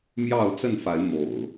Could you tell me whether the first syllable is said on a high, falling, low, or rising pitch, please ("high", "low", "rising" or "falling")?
falling